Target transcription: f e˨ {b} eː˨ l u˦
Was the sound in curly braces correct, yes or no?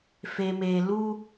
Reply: no